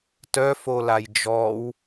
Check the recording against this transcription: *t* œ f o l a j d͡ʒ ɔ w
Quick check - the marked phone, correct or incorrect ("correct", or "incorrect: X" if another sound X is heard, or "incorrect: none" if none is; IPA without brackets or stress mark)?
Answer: correct